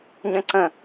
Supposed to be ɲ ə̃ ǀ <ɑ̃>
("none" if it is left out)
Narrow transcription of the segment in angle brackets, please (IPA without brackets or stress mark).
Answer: ə̃